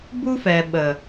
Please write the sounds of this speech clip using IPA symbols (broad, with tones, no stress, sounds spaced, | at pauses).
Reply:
b u˦ f ɛ˨ ɓ ə˨